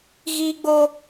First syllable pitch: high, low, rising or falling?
high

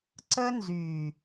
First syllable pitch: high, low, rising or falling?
high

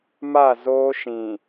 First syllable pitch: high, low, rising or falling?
falling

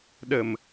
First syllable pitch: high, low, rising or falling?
low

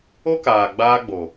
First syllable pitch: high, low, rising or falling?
high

